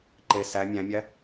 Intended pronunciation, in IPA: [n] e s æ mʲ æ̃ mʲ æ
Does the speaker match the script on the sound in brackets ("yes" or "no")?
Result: no